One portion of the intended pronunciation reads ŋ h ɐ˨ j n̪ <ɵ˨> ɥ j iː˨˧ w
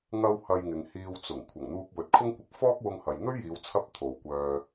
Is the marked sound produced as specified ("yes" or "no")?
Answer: no